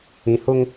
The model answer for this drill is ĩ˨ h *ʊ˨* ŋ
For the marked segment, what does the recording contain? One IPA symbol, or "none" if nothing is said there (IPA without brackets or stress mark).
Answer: ʊ˦